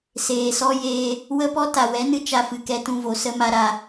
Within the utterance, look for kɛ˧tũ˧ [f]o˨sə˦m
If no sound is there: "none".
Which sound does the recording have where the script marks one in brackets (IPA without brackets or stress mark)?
v